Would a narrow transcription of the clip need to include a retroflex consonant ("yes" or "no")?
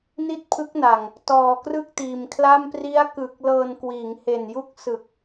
no